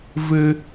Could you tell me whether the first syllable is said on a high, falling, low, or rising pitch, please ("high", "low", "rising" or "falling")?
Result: high